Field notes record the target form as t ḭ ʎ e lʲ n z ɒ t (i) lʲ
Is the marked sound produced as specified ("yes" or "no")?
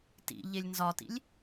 no